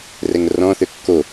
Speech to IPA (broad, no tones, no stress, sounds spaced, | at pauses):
r ɛ ŋ r ɔ̃ θ ø kː o